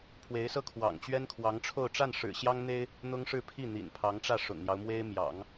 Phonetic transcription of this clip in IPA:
pʰ w e˧˥ ɪ̯ s ɤ˥ kʰ w ɑ̰˨˩ ŋ t͡ɕ ɥ ɛ˥ n kʰ w ɑ˧˥ ŋ ʈ͡ʂʰ o˥˧ ʊ̯ ʈ͡ʂ a˥˩ n ʂ ɻ̩˨˩ ɕ j ɑ˥ ŋ n̪ e˥ ɪ̯ | n̪ ʊ˥ ŋ ʂ ɻ̩˥˧ pʰ i˥˩ n̪ ḭ˨˩ n pʰ ɑ˧˥ ŋ ʈ͡ʂ ä˥˩ ʂ ʊ̰˨˩ ŋ n̪ j ɑ˦ ʊ̯ m w e˥ ɪ̯ m j ɑ̰˨˩˦ ŋ

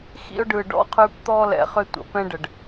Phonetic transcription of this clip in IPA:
x ḭ˦ ʊ̯ ɖ ɯ˨ ɖ ɔ̰˦ qʰ ʉ˦ p t̪ ɔ˦ l ɛ̰˨ χ ʏ˦ tʷ ə̰˨ p ɛ̃˦ ɖ ə˨ ɖ

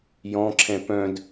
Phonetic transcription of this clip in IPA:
j ɔ̃ ǁʰ ɛ̃ p œ̃ d

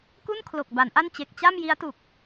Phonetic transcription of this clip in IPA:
k u˥˩ n kʰ l o˨˩ k̚ b a˩˦ n ʔ a˥˩ n t͡ɕ e˨˩ k̚ t͡ɕ a˥˩ m j i˦˥ a̯ t u˨˩ k̚

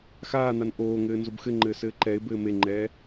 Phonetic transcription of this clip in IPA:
x aː n̪ a n ʔ oː ŋ ɘː n z o b x ɘ ŋ͡ǃ ɘː s ɘː ǃ ɛ ɪ̯ b ɘː m e ŋ͡ǃ ɛː

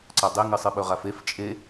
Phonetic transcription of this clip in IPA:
ǀ a dˤ e ŋ ɨ sˤ ɨ ɓ ɵ ʁ a f e f t͡ʃʼ e

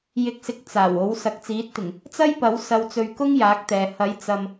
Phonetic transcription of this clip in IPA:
j ɪ˧ k̚ s ɪ˧ k̚ t͡s aː˨˩ w o˨˥ w s ɐ˨ k̚ t͡s iː˨˥ t̚ t̪ ɪ˨˩ ŋ | t͡s ɐ˥ j p ɐ˨˥ w s ɐ˨ w t͡s ɵ˨ ɥ k ʊ˥ ŋ j aː˨˥ k̚ t̪ ɛː˨ h ɐ˨˥ j t͡s ɐ˨ m

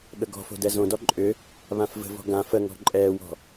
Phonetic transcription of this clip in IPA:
ɠ ə ɡ ɔ̤ f o̤ d ɛ z õ d ɔ ǃʼ ʏ | β ã f v ə̤ v ɔ̤ ɡ ã f ə ŋ ɔ̤ ǃʼ ɛː w ɔ̤

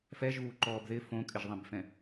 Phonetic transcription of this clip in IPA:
f ɛ ʒ uː ǃ ɔː b ð ɪ f õ kʼ ɪ ʒ ðˤ ẽ b f ɛ̃

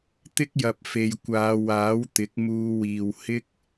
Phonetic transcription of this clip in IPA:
t̪ ɪ˥ k̚ j ɐ˨ p̚ f e˨ j kʷ aː˨˧ w aː˨˥ w t̪ ɪ˨˥ k̚ m uː˧ w iː˨ w h ɪ˥ k̚

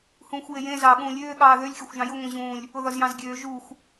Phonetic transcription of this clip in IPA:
h ũː xʷ j e j ẽ z ɑː ɠ ũː lʲ øː ɠ ɑː ð ø lʲ xʲ ɒ xʷ ʒ ɑ̃ j ʊ ŋʷ ẽ ʑ ũː lʲ | ʊ ð ɒ z j ɑ̃ z ɡʲ øː ʒ u xʷ

